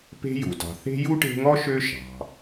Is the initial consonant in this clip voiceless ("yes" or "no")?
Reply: yes